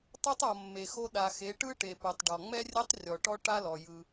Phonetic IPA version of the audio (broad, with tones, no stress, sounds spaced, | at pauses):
tˤ u˦ tˤ ɔ˨ mː e˨ x o˦ ɗ a˨ x e˨˦ ʈ ɯ˦ ʈ e˨ p u˨ tˤ ɖ ɔ˨ ŋ͡m ɛ˦ rʲ ɛ˦ tˤ rʲ ɔ˨ ʈ ɔ˦ ʈ a˦ l ɔ˨ j ɯ˦